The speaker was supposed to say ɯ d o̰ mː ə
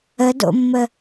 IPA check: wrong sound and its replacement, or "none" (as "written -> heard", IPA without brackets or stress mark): ɯ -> ə